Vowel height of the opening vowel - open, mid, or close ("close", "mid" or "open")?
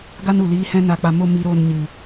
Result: open